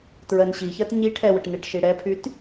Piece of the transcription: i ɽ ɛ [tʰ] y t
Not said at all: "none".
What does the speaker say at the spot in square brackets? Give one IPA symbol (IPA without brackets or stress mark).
pʰ